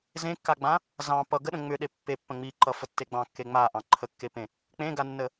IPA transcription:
z ẽ kː a ɡ͡b ã | z ɑ̃ p ʌ ɡ ə ɗ ə̃ ŋ͡m ʏ ɗ e pː e pː ə̃ ŋ͡m i ǃ ʌ f ə tː e ɡ͡b ɑ̃ kː e ŋ͡m a ʔ ɑ̃ ǃʰ ə kː e p ẽ | k͡p ẽ ɡ a nː ə

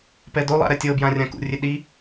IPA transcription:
p ɛ d o lˠ a̰ ɾ ɛ tʲ ɤ b j ã rʲ ã k ṵ rʲ e ɗ i

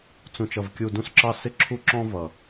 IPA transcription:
t͡s ũ˨ t͡ʃ ʌ˨ v kʲ u˨ d ũ˧ s ǁ ɑ˧ s ɪ˦ ǁʰ u˧ ǁ ɔ̃˧ v ʌ˨

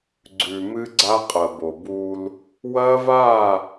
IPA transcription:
ɡ͡ǀ ʉ˨ m ɨ˦ ɡ͡ǀ a˦ qʼ ɐ˨ b o˨ b uː˦ l | w ɐː˦ v aː˦˨

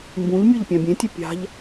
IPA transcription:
m b ũ ʎ mʲ o ʎ pʲ ã bʲ ẽ tʲ a pʲ a̤ ʎ

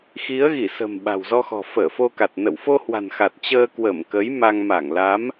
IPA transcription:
x i˨˦ ə̯ ɣ i˧˩ s ə̤˨˩ m ɓ a̤˨˩ w z ɔ˧ x ɔ̤˨˩ f əː˧˩ f o˧ k a˨˩ t̚ n ə̰˧˨ w f o˧ h w a̤˨˩ n x a˨˩ t̚ t͡ɕ əː˧ k w ə˧˩ m k ə˨˦ j m a˧ ŋ m a˧˩ ŋ l a˨˦ m

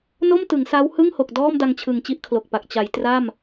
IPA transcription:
n o˥˩ m t ɯ˩˦ ŋ s a˦˥ w h ɯ˥˩ ŋ h o˨˩ k̚ d ɔː˥˩ m d a˧ ŋ t͡ɕʰ ɯ˨˩ ŋ t͡ɕ i˥˩ ʔ kʰ l o˨˩ k̚ p a˨˩ k̚ t͡ɕ a˩˦ j t r a˥˩ m

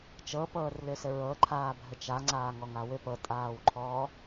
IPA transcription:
t͡ʃ ɤ p ɤː r l ʏ s ɘ ɹ ɤ ǃʰ aː bʱ ɘ t͡ʃ a ŋ͡ǀ aː ŋ ɔ ŋ a w ʏ p ɤ tʼ aː w ǃʰ ɔː

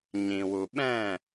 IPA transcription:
ɲ ĩ˨ w u˨ ɓ ɛ̃˦˨

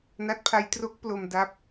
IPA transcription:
n a˦˥ t̚ pʰ a˦˥ j t r o˦˥ k̚ p l o˧ m d a˦˥ p̚

